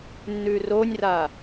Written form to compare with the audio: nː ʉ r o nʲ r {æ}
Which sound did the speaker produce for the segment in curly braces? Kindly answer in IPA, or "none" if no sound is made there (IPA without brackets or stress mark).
a